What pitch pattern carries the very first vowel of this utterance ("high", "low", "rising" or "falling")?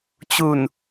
low